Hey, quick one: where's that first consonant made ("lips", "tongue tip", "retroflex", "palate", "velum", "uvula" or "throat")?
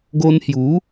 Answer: velum